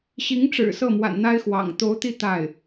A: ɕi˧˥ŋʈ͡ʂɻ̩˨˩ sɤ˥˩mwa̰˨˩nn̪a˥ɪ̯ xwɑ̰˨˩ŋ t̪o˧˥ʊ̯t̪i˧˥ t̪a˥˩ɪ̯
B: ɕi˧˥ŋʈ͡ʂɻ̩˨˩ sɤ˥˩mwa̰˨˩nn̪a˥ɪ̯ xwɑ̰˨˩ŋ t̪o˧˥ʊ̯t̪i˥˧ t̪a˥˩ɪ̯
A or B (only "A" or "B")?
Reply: B